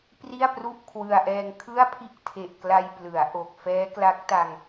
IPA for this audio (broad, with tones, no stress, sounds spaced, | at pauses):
p r i˥˩ a̯ p r u˥˩ ʔ kʰ w ɯ˧ a̯ ʔ ɛː˧ ŋ kʰ ɯ˥˩ a̯ pʰ i˥˩ ʔ tʰ e˨˩ ʔ k l a˧ j p l ɯ˩˦ a̯ ʔ o˨˩ k̚ f ɛː˦˥ k l a˦˥ k̚ t a˧ ŋ